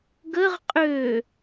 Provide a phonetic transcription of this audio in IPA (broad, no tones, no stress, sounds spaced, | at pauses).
ɡ ə ʁ qʼ ø